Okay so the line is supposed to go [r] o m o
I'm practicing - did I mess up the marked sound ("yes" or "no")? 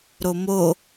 yes